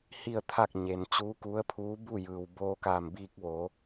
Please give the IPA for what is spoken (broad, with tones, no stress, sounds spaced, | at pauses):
h i˥˨ ə̯ t̪ʰ a˥˨ k̚ ɲ e˩ n t͡ɕ uː˧˥ k u˧˥ ə̯ pʰ uː˧˥ b u˥˨ j ɯː˩ w b oː˧ k aː˧˩ m b iː˧ k̚ ʋ oː˩˧